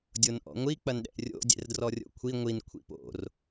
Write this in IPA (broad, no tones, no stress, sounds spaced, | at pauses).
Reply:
dʲ o n ʔ ɔ̰ ŋʷ i k͡p ɐ n ɗ ɛ̰ ʔ rʲ o̰ dʲ ɛ̰ r d r ɔ rʲ o̰ kʷʰ i ŋʷ i n kʷʰ ḭ p o̰ r